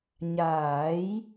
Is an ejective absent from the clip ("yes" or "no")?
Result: yes